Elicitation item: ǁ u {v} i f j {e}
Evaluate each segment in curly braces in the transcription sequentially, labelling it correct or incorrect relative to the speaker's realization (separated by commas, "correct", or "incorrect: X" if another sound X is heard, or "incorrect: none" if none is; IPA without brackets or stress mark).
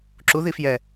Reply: incorrect: ð, incorrect: ɛ